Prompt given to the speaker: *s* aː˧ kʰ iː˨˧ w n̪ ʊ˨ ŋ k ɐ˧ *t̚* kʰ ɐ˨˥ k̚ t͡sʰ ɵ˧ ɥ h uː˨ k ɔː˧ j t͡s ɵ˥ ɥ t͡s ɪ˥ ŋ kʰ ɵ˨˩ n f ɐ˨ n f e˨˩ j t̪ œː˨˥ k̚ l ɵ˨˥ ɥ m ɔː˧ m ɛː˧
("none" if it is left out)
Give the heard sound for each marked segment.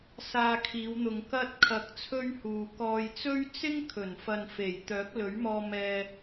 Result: s, t̚

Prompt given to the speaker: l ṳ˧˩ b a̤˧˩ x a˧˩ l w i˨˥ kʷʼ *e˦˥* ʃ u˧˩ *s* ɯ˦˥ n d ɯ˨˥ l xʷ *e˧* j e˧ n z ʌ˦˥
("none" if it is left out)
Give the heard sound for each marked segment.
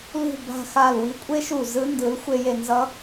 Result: e˦˥, z, e˧

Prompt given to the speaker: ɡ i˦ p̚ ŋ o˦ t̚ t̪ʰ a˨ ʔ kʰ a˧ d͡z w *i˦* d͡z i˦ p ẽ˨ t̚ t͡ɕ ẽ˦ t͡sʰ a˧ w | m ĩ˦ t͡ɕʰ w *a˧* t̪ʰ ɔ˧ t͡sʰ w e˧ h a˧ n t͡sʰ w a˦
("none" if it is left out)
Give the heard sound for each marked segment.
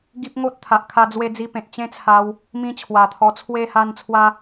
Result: e˦, a˨˩

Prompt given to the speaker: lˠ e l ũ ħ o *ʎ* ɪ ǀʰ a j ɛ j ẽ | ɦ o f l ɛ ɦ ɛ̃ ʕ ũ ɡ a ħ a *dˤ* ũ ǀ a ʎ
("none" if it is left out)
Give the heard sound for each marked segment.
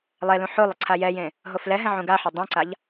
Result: lˠ, dˤ

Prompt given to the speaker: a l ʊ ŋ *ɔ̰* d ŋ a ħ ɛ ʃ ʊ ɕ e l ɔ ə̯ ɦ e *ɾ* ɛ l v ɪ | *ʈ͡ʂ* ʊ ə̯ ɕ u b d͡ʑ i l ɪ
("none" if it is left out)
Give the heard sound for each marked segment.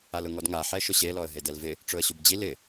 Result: ɔ, d, ʈ͡ʂ

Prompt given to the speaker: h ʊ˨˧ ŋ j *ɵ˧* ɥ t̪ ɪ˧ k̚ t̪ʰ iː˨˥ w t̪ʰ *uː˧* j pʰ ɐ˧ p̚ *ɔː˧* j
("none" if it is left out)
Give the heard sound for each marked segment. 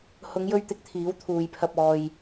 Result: ɵ˧, uː˨, ɔː˧

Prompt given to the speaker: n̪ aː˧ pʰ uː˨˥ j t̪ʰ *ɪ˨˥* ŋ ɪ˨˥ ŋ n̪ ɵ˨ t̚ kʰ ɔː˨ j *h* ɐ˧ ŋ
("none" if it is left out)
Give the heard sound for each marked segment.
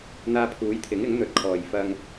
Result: ɪ˨˥, f

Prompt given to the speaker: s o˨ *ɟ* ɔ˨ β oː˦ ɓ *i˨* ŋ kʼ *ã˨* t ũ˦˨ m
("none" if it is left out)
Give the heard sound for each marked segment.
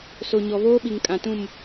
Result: ɲ, i˨, ã˨

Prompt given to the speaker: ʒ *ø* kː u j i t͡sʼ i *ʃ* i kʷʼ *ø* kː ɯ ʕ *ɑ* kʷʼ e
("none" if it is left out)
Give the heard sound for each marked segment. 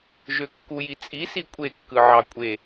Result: ø, s, e, ɑ

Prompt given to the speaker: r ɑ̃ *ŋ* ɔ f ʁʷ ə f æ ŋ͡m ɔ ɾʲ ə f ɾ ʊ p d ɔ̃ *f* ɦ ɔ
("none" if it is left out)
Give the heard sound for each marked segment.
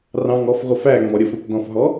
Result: ŋ, f

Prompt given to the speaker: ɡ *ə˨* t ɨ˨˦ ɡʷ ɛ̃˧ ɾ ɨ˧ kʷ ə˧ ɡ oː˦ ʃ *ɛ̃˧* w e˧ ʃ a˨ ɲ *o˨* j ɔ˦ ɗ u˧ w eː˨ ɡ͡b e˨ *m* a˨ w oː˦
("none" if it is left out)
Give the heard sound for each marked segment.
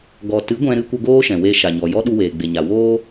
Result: ɔ˨, ɛ̃˨, ɔ˨, ɲ

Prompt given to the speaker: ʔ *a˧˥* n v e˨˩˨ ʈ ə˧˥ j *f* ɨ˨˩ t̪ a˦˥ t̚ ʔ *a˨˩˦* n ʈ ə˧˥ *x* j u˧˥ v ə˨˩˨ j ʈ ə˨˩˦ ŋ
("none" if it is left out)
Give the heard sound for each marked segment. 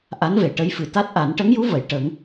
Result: a˧˥, f, a˨˩˦, ŋ

